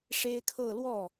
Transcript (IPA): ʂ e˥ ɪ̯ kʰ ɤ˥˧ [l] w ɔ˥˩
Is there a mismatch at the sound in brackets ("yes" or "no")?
no